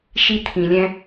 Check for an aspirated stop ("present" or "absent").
present